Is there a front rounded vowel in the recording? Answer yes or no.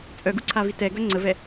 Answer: yes